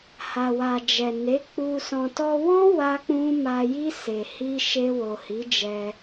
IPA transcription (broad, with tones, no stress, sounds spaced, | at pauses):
h a˨ w a˨ d͡ʒ ɛ˨ n e˨˦ k͡p u˧ s ɔ̃˨ t ɔ˧ w ɔ̃˦ w a˦ k͡p ũ˦ m a˧ j i˦ s e˧ h i˦ ʃ e˧ w o˨ h i˨˦ d͡ʒ ɛ˧